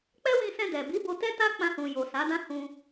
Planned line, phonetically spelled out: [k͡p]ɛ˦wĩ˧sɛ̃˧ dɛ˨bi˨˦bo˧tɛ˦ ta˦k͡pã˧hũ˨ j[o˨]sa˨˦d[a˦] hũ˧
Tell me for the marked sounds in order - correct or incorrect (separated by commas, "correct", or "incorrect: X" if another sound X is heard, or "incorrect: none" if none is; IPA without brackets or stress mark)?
correct, correct, incorrect: ã˦